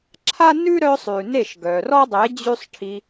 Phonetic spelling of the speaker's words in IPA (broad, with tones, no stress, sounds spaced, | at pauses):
ǁʰ a˦ n ʉ˦ ɾ œ˧ sˤ ʉ˨ n e˦˨ ʃ ɡ œ˨ r ɔ˦ dˤ e˨˦ d͡ʑ ʉ˦ sˤ ʈʰ i˧